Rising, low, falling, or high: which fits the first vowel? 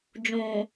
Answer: low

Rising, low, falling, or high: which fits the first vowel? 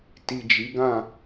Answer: low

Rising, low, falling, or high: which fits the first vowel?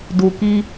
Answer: low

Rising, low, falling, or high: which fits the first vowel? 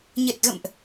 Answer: low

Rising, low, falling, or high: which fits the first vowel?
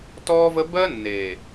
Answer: high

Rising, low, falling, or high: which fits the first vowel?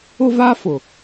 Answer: high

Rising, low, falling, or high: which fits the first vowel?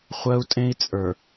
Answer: high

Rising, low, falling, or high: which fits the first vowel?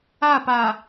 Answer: falling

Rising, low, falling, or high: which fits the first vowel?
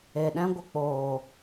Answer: low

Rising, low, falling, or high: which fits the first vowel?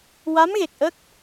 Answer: rising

